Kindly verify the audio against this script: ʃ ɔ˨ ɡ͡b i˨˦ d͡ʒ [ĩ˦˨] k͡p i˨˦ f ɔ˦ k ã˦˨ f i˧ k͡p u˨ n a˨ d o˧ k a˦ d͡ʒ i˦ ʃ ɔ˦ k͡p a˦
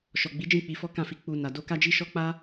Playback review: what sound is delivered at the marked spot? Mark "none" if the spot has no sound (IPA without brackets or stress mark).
ĩ˦˨